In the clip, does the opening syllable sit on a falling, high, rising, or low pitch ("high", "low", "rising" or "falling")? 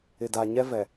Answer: low